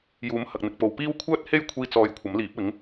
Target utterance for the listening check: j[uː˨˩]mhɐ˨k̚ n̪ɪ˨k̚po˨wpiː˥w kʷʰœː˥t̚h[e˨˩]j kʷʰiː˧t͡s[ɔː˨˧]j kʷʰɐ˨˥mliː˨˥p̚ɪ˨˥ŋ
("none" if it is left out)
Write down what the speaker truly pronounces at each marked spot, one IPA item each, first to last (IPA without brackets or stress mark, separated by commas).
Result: uː˨˥, e˥, ɔː˨˧